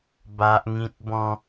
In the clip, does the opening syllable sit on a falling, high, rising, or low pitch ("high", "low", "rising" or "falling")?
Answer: high